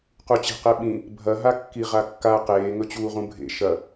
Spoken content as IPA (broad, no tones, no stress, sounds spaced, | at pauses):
q u t͡ɕ e̤ q e ɓ ĩ | bʱ ɐ ɦ a kː i ʁ a kː a q eː ŋ ɵ t͡ɕ uː ʁ ũ bʱ ḛ ʃ ɐ